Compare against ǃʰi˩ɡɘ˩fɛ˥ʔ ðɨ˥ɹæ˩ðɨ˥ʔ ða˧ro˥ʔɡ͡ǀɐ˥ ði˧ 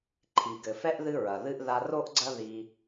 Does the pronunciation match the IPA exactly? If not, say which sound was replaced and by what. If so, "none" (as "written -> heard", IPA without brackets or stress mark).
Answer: æ˩ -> ɐ˩